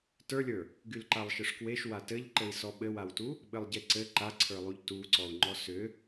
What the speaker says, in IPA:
tə˞lʲə˞ | ɡylǃalˠʃɘʂkweʃ watɘʎǃɘi̯ sɔɓɘwawtu | ɓɘlˠɟeǀɘ ǃaǀʰə˞lˠuʎ tuǀɔu̯ŋ͡ǃɔ sʏ

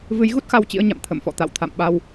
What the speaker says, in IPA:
vɨ˨˦jɣu˦˥t̚xa˧w t͡ɕḭ˧˥ə̯ɲa̰˧˨m t̪ʰə̰˧˨mfɔ̰˧˨t̪a̰˧˨w t̪ʰa̰˧˨mɓa˧w

